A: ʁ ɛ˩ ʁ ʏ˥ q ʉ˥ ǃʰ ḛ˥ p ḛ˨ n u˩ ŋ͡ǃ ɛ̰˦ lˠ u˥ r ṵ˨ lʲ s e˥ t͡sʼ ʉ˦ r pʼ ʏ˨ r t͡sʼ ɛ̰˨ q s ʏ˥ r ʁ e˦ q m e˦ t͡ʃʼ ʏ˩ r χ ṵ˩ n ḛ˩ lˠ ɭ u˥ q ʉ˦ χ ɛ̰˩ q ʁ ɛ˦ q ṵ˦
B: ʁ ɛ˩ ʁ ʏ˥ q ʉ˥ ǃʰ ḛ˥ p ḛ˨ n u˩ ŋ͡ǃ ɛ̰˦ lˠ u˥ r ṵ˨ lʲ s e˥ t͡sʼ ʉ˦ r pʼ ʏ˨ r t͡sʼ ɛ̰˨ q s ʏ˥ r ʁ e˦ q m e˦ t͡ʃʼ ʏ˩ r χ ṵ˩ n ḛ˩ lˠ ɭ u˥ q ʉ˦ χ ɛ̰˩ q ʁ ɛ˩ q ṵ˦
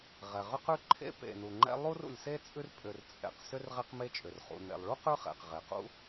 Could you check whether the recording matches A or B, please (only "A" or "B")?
B